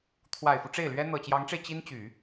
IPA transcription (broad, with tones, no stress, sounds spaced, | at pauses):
t̪ʰ w a˨˩ ɪ̯ f u˦ ʈ͡ʂ e˥˩ ɪ̯ l ɥ ɛ˥ n̪ ɤ˨˩ t͡ɕ j ɑ˧˥ ŋ ʈ͡ʂ e˧ ɪ̯ t͡ɕ i˥ n t͡ɕ y˨˩˦